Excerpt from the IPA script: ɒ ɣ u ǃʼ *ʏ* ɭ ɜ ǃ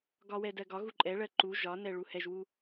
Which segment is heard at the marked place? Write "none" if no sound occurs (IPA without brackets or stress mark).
ɛ